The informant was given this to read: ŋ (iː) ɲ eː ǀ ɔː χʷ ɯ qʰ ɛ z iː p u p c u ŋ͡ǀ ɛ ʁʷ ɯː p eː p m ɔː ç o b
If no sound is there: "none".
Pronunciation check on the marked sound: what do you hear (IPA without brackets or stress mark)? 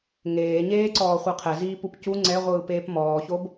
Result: eː